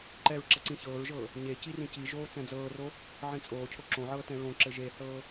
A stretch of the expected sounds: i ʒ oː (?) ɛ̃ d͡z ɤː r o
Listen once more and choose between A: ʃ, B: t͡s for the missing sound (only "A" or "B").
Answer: B